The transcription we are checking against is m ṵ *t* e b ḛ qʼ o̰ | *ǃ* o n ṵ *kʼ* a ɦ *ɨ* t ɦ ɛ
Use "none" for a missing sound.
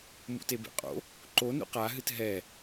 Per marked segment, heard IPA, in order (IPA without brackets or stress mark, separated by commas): t, ǃ, q, ɨ